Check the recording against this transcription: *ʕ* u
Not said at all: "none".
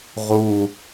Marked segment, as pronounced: ʁ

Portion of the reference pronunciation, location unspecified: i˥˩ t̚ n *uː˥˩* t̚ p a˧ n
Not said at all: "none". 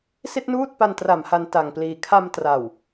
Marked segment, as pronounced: uː˥˩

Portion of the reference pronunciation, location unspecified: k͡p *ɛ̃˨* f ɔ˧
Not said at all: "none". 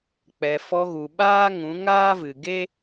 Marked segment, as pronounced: ɛ˨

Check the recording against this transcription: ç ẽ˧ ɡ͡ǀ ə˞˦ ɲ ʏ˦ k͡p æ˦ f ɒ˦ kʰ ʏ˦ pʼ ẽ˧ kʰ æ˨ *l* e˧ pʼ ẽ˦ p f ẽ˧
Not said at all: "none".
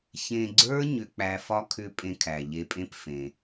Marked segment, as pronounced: ʎ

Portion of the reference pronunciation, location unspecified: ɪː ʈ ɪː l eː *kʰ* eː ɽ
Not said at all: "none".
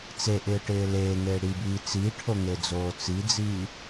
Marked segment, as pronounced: ŋ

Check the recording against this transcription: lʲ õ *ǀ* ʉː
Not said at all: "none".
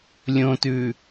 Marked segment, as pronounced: t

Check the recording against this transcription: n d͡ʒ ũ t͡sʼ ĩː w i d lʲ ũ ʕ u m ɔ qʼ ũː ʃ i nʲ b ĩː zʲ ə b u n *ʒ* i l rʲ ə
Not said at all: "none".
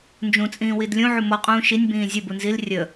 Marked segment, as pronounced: z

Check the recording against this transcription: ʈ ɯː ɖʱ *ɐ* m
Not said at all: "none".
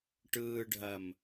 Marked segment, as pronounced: ɐ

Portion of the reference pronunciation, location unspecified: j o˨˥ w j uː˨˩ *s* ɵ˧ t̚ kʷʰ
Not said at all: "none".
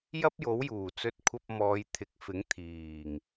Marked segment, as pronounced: t͡s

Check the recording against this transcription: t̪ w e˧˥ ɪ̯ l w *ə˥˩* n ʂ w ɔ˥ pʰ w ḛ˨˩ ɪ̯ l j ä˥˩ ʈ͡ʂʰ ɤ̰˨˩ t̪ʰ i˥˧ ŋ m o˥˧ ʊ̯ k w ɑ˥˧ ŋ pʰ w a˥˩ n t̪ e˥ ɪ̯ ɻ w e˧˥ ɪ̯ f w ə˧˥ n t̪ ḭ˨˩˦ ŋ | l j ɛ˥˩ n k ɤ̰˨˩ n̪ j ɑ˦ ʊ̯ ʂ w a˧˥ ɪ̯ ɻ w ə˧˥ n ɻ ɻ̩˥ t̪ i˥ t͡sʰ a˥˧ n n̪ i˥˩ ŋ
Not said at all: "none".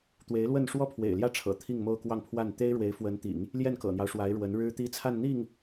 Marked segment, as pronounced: ə˥˩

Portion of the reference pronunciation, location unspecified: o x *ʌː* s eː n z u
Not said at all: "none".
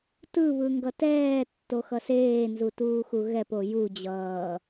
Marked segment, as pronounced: ʌ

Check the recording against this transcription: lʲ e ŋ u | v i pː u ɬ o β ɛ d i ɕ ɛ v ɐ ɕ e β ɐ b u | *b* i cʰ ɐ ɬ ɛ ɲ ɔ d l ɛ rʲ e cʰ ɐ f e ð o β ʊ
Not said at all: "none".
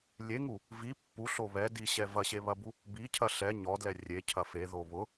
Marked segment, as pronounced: b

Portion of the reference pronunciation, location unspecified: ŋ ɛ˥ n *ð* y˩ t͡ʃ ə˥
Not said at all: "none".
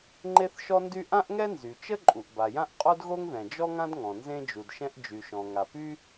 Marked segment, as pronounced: z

